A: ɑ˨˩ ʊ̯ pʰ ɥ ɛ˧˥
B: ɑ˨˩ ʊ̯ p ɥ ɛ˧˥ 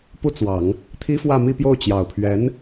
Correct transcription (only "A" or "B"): A